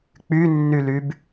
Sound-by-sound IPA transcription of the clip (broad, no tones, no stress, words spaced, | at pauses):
k͡pynːylyb